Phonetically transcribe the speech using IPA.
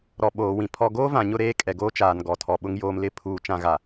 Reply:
ɾɔ˨ ɓoː˨wĩ˨ pʰɔ˨ɡoː˦ vã˨ɲʊ˦˨ ɾeː˦kʼɛ˨ɡoː˦ t͡ʃaː˨nɡɔ˨tʰɔ˨ɓʊ˦ŋ joː˨mlɪ˦˨ pʰuː˨t͡ʃã˦˨ɣa˨

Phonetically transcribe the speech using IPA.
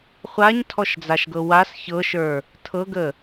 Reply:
χʷaɲtʰɔʃd͡zaʃɡɤ was çɤʃə˞ | tʰɤɡə

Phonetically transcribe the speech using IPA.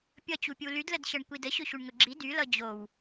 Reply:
pʲʌt͡ɕupʲu lydlədɕʌɳ kʷidə ɕɵɕuɳŋɵɡ͡ǁi dylʌ d͡ʑow

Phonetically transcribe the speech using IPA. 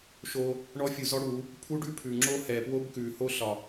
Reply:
ʃo˦ | ɳɔ˦fʲu˨zɔ˦ ɽu˨˦ | pʰu˦ɖʉ˦ pʰʉ˨ ŋ͡ǁo˦ hɛ˨pwo˦bkʉ˨ ho˦ɬɒ˨

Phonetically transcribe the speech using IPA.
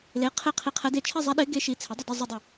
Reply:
le˩˥ qʰe˥˩qʰi˧˥qʰɛ˧˥de˥˩ t͡ʃʰɛ˥˧zˤɛ˧˥ɗɪː˧˥ ɡe˧˥ʃi˩˥ t͡sʰɪ˩˥dˤə˥˩dɛ˥˧ zˤɵ˥˧dˤə˥˩

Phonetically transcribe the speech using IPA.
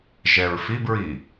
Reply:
ʒɛɹfibɹi

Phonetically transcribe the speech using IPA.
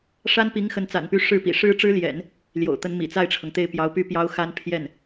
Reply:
ʂa˥npi˧˥ŋ xə˧˥nt͡sa̰˨˩npy˧˥ ʂɻ̩˥˩pḭ˨˩ ʂɻ̩˥ʈ͡ʂɻ̩˥ljɛ̰˨˩˦n | ljo̰˨˩ʊ̯t̪ə˧˥nmḭ˨˩ t͡sa˥˩ɪ̯ʈ͡ʂʰɤ˩ŋt̪e˥˩ɪ̯ pjɑ˧˥ʊ̯py˥˩pjɑ˥ʊ̯ xa˥npʰjɛ˥˩n

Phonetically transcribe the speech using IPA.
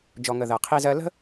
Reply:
d͡ʒɔ˨ŋə˨ ðɜ˨qʰi˦zɜ˦ lə̤˦

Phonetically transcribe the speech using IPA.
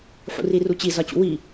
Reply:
ħṵrirut͡ɕi zɒt͡ɕṵwi

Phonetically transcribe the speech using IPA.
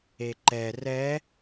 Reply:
eǃɛ rɛ

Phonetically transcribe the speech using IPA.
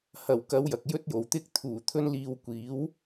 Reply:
hɐ˨˩wkɐ˨˧w jɐ˨k̚jɵ˥t̚jo˨w t̪ɪ˧k̚t̪ʰuː˨˩ t̪ʰɵ˥nliː˧wkʷiː˨˥w

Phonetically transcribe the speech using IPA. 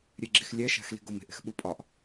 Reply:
ɾʲeɡ͡ǁixlʲæʃæ̤x li̤ɡome̤ʔ e̤xɓupʼɒʔ

